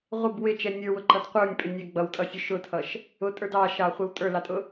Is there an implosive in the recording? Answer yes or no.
no